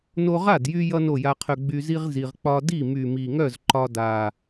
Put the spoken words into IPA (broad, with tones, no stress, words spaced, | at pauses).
no˧ʁa˥˩djy˧ jʌ˥no˥˩ja˧qʰœ˧ ɡ͡by˧zi˥ʁ zi˧ʁ k͡pɒ˧di˥˩ my˨˩mi˨˩ŋœ˥˩z ǃɒ˧da˨˩